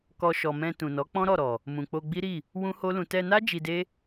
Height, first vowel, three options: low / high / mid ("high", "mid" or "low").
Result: mid